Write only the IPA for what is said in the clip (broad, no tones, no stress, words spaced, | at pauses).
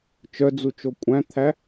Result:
t͡ʃœd͡zut͡ʃo kʷʼæ̃t̪ʰæ